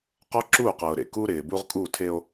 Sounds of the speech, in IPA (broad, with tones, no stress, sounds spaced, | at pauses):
q ɔ˦ ǁ uː˦˨ q ɤː˨ ɾ ḛ˨ k uː˦ ɾ ɪː˨ b u˦ ʁ kʼ uː˦˨ tʰ e˦ o̯